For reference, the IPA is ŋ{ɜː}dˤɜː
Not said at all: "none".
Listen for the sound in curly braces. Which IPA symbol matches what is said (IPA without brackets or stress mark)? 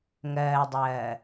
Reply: ɜː